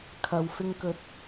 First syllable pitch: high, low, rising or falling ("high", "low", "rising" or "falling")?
low